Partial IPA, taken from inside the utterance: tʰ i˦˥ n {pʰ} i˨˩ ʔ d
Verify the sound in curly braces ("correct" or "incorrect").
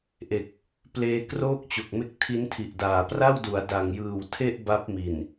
incorrect